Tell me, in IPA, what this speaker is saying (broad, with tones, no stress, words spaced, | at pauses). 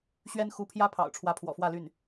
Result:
ɕɥɛ˥nxu˧˥pʰjä˥pʰɑ̰˨˩ʊ̯ ʈ͡ʂʰwä˧˥pʰwɔ̰˨˩fwä˥˧ly˥˩n